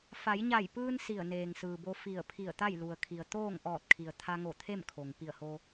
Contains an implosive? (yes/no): no